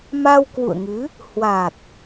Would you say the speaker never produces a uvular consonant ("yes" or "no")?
yes